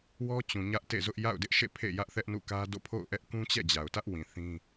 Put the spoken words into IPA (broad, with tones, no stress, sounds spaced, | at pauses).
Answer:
w ɔ˦ t͡ɕ ũ˨ ɲ ä˦ ʔ t ḛ˦˨ z ʊ˦ ʔ j a̰˦˨ ʊ̯ d ɪ˦ ʔ ʃ ḛ˦˨ pʰ ḛ˦˨ j ä˦ ʔ θ ɛ˦ ʔ n ṵ˦˨ k ä˦ d o̰˦˨ pʰ o̰˦˨ ʊ̯ ʔ ɛ˦ ʔ k ũ˦ t͡ɕ ɛ̰˦˨ d͡ʑ a˨ ʊ̯ t ä˦ ʔ w ĩ˨ θ ĩ˦